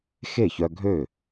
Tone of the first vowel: falling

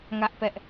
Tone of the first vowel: high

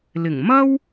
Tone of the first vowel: low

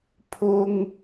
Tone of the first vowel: high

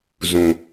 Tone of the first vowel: low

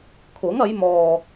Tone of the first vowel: rising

